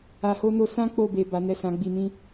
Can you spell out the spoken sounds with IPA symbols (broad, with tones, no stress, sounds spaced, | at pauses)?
a˨ h o˧ n o˧ s ã˦ k͡p o˦˨ b e˨ b a˨˦ n ɛ˦˨ s ã˨˦ ɡ͡b i˧ m ĩ˦